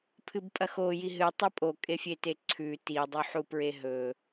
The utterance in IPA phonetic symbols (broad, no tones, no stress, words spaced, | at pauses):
pʰɨbpʼɐxoji ɦɨtˤɵ pʼokʼefʲete ǀʰʉ tidˤuħupɹe ɦɵ